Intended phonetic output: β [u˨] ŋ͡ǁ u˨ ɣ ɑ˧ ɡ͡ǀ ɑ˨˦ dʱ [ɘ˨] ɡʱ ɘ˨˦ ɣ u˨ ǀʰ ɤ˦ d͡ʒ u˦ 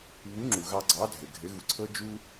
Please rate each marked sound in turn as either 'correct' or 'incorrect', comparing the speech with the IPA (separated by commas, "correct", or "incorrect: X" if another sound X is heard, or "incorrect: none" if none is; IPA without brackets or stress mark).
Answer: incorrect: u˨˦, correct